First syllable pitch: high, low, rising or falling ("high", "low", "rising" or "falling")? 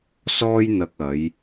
high